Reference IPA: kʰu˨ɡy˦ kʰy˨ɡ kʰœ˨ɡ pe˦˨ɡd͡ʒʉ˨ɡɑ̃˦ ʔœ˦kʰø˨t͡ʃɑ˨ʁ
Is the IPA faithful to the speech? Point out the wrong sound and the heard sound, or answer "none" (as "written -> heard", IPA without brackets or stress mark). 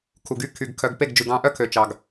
ʁ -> ɡ